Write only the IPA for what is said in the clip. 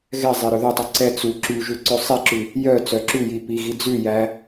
ɣ ɛ zˤ e ɾ ɵ ð ɵ tˤ ʉ ǀ ɛ t͡s u ǁ y ʒ ʉ ǀ ø sˤ e ǁ ʉ | j œ t͡s œ ǁ ʉ j i p i ɣ i d͡z ʉ j æ

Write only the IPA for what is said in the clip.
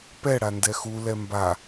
p ɛ ɽ a n d ɛ x u l ɛ m b a

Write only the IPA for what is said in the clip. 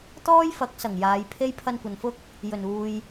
t̪ ɔː˥ j f ɐ˨˥ k̚ s ɐ˨˩ ŋ j aː˨˧ j pʰ e˥ j pʰ ɐ˧ n kʷ ɐ˨ n f ʊ˥ k̚ | j ɵ˨˩ n uː˨ j

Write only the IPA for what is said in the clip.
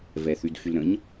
v ɛ θ y d x y l ɾ ə̃ ɲ

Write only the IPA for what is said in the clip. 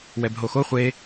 w ɛ b ɦ o x o χʷ e

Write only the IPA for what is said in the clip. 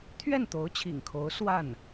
t̪ʰ ɥ ɛ˥˩ n t̪ o˧˥ ʊ̯ t͡ɕʰ ḭ˨˩ ŋ kʰ o˧˥ ʊ̯ s w a˥˩ n

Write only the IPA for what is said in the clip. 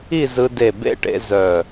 i˥˧ z ɯ˧ d e˧˩ b ḛ˥˧ ʈ ḛ˧ z œ˧˩

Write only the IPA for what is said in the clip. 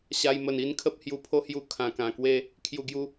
ɕ a˧ j m ə˨˩ n i˧ n kʰ ə˦ p̚ h j u˨˩ pʰ o˧ h j u˧ kʰ ã˨˩ k ã˨˩ k w e˦ | kʰ j u˨˩ ɡ j u˧

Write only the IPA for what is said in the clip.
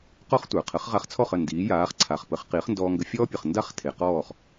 q ɔ˥ χ tʷ ə˞˩ qʰ ə˩˥ χ ʁ a˧ χ t͡sʰ ɔ˥˩ χ ə˥˩ n d iː˩˥ j aː˩˥ χ ǀʰ a˩ χ p ə˩˥ χ q i˩˥ χ n d ɔː˧ ŋ ɡ ə˧ fʲ ɔː˥ pʲ ə˩ χ n d a˥ χ tʰ e˩ q ɔː˥˩ χ

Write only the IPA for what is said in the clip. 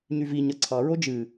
ɲ y v i ɲ ʌ ǀʰ ɑ ɹ o d͡ʒ ɨ

